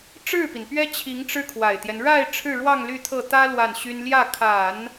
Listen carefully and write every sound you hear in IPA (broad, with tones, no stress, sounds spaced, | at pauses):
ʈ͡ʂ ɻ̩˥˩ p i˩ n p ɥ ɛ˥ t͡ɕʰ i˧˥ ŋ ʈ͡ʂ ɻ̩˥ kʰ w a˨˩ ɪ̯ t̪ j ɛ˦ n ɻ a˥˧ ɪ̯ ʈ͡ʂʰ ɻ̩˥˧ ɻ w ɑ˥˧ ŋ l y˥˧ t̪ʰ ɤ˥˩ t̪ ä˥ l w a˥˩ n ɕ y˥ n l j ä˥˩ kʰ a˨˩˦ n